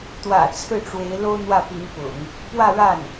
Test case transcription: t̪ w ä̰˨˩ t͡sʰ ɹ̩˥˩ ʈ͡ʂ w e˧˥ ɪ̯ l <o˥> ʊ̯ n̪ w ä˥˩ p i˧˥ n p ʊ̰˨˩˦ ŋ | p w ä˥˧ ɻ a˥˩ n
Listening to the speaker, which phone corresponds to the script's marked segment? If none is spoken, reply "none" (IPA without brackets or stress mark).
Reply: o˥